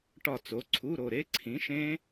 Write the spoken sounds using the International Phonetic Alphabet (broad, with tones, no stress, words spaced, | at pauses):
ʈɒ˦˨t͡so˨˥ǀʰu˧˥˧ɾo˦˨ ɾe˦˥ǀʰĩ˨˥ʃẽ˦˥